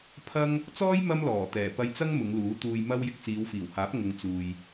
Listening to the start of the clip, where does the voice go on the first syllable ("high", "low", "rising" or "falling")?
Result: high